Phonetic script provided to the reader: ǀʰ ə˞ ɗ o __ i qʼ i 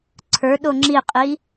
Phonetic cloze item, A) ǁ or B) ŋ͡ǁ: B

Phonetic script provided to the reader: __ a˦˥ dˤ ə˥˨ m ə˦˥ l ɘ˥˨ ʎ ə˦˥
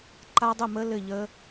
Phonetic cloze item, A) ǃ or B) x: A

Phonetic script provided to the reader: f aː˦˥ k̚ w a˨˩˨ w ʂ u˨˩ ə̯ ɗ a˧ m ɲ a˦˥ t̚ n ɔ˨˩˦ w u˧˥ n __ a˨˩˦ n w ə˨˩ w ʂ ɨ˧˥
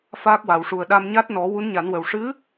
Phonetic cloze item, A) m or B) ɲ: B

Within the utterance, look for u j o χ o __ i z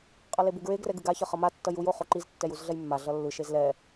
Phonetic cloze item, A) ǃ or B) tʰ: A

